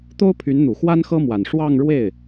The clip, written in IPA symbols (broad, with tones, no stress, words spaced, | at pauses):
t̪o˥ʊ̯pʰy˧˥nn̪u˨˩ xwa˥nxɤ˥mwa˨˩n ʂwɑ˥˧ŋɻwe˥˩ɪ̯